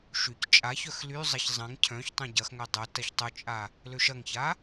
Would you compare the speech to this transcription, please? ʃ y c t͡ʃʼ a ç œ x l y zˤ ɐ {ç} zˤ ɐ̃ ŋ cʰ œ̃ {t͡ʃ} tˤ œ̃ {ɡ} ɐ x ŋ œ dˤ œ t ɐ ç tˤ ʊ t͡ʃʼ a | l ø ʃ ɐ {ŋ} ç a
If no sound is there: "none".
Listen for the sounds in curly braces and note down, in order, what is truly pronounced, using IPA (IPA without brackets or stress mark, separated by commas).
ç, ç, ɟ, ŋ